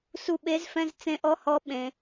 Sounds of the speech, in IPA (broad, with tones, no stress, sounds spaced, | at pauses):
s u˦˨ ɓ e˧˥ z f ɛ̃˧˥˧ z t͡s ẽ˧˥ ʔ ɔ˧˥˧ h ɔ˧˥ ɓ ẽ˩˧